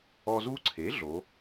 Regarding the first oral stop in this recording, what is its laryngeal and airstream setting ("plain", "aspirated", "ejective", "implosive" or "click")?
click